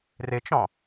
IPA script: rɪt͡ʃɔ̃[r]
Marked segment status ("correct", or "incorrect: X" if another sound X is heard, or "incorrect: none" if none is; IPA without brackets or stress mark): incorrect: none